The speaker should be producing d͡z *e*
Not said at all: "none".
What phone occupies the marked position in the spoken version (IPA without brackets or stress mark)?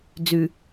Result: y